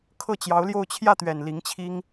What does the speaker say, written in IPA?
kʰ ɤ˥˩ t͡ɕ j ɑ˧˥ ʊ̯ l j o˥˧ ʊ̯ t͡ɕʰ j ä˥˩ t̪ ɥ ɛ˨˩ n l i˧˥ ŋ t͡ɕʰ i˥ ŋ

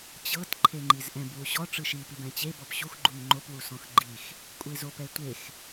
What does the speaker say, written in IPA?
t͡ɕ ɤ t ǃʰ e ŋ͡ǃ i z ʔ ɛ̃ b w u ɕ ɔ ʈ͡ʂ ɯ ʃ i p i b ɛ̃ t͡ɕ e b ɔ p ɕ u x ɡ͡ǃ u ŋ ŋ͡ǃ o p w u s ɔ̃ x ɡ͡ǃ i x | kʷʼ e z o p ɛ tʷ e x

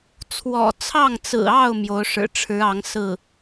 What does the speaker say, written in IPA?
t͡sʰ w ɔ̰˨˩ t͡sʰ ɑ˥˩ ŋ t͡s ɹ̩˨˩ ɑ˥˩ ʊ̯ m j o˧˥ ʊ̯ ʂ ɻ̩˨˩ ʈ͡ʂʰ ɻ̩˧˥ ɑ˧˥ ŋ s ɹ̩˥˩

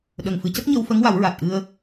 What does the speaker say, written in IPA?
ɗ ə˨˩ ŋ f ɨ˨˩˦ c ə˦˥ k̚ ɲ ə˧ w f ə˧˥ ŋ w a˨˩˦ w ɹ a˨˩ t̚ ʔ ɨ˧ ə̯

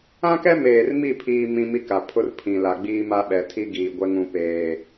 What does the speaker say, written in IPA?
ã˦ k ɛ˦ m eː˨ r m i˦˨ pʰ iː˦ m ĩ˦ m i˦ k a˨ pʰ ʊ˦ r pʰ ĩ˨ l a˨ ɡ͡b iː˦ m a˦ ɓ ɛ˨ tʰ i˦ ɡ iː˨ ɡʷ ɛ˦ ŋ ũ˦ p eː˦

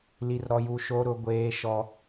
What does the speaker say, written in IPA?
l i˦ r ɾ ɔ˦ j u˦ ʃ o˦ ɾ ʊ˦ ɡʷ eː˦ ʃ ɔ˦

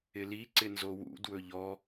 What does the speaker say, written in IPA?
ɪ l i ǀ ɪ n z o w ṵ d w ɵ ʎ ɔ

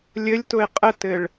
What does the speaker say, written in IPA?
lʲ ɘ lʲ t ʊ e̯ qʼ ə t ɘ ɭ

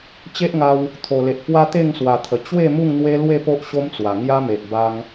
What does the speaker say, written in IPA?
t͡ɕ e˦ ʔ ŋ a˧ w | t̪ʰ o˨˩ l e˨ ʔ p w a˦ t̪ e˥˧ ŋ s w a˨˩ t̪ʰ ə˨˩ t͡ɕ w e˥˧ m u˥˧ ŋ n̪ w e˦ l w e˥˧ p o˦ ʔ ɕ o˦ m t͡s w a˨˩ ŋ j a˦ m e˨ ʔ b a˧ ŋ

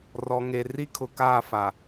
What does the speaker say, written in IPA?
r ɔ˨ ŋ e˨ r i˦ kʰ ʊ˨ k aː˦˨ f a˨

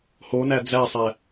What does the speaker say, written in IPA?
h o n æ d͡z æ sˤ æ

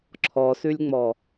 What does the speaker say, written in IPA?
ǁʰ ɔ s ʉ lʲ ŋ͡m ɔ

